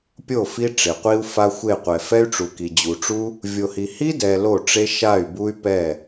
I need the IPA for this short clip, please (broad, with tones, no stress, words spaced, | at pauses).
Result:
pʲo˦˨ fi˦ʈ͡ʂe˨qʷi˦u̯ fa˦xʷe˦˨qʷɛ˨ fɛ˦y̯ʈ͡ʂu˨ki˨ d͡ʑu˨ʈ͡ʂu˦ | vʲo˧hi˧ hi˦ dɛ˧lo˦˨ʈ͡ʂe˦ ʃa˦˨y̯bu˦y̯pɛ˦˨